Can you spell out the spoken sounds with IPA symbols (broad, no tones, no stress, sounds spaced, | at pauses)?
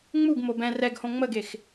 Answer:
ŋ͡m u ɡ m o b ɛ̃ r ɛ ɡ h õ ŋ͡m ə ɡ e x